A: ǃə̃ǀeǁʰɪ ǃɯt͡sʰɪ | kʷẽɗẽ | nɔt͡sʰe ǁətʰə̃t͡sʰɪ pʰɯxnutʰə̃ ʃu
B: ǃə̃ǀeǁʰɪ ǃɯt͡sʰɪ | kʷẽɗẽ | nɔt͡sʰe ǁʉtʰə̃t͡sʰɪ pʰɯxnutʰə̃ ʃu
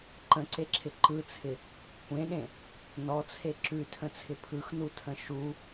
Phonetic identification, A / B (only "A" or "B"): B